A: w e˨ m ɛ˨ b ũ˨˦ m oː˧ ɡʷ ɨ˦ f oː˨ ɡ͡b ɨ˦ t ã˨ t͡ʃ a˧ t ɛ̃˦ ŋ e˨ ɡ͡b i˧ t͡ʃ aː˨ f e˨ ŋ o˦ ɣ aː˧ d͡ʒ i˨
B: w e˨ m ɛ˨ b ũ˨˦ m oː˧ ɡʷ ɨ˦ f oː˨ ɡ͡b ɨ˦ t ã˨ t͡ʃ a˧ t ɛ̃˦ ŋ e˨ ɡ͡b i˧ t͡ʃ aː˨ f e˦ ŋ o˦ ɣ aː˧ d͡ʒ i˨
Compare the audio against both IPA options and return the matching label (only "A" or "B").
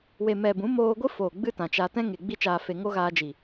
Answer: A